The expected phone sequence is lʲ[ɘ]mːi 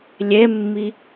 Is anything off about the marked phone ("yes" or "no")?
yes